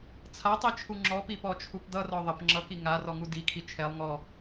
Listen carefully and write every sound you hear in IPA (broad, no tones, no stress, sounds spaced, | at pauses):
t͡sʰ a tˤ i t͡ʃʰ u ŋ͡ǁ ɔ p i p ɔ t͡ʃʰ u p d̪ ʌ r ɔ ðˤ ə p ŋ͡ǁ ʌ k i ŋ a r ɔ ŋ u d i kʰ i t͡ʃʰ ɛ lˠ ŋ ɔ